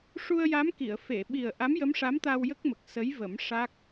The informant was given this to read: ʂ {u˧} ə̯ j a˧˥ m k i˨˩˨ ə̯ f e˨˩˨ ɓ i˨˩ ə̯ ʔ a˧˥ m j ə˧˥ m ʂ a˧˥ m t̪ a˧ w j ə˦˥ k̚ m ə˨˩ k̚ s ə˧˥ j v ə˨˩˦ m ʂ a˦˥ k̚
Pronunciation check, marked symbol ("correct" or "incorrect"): correct